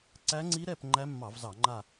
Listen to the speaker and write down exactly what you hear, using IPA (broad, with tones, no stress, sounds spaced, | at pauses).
ǀ æ˦˥ ŋ͡ǀ i˦˥ ɾ ɛ˦˨ p ŋ͡ǃ æ˦˥ mː ɑ˧˩˧ v z ɑ˧˩˧ ŋ͡ǃ a˦˨